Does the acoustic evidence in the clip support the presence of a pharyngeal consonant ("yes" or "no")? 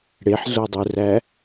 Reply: yes